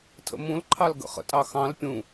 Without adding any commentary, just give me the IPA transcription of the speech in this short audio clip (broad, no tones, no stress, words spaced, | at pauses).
tʰə̰mũlǃʰɑl ɡə̰χə̰tʼɑxɑ̃l pʲũ